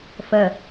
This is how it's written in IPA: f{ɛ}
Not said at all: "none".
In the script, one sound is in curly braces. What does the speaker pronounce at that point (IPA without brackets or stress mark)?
ə